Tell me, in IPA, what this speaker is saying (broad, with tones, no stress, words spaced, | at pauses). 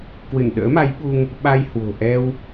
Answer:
kwɨ˧˩nɗə̰ː˧˥ma˨˦jɓu˧ŋ | ɓa˧jhwo̤˨˩ ʔɛ˧w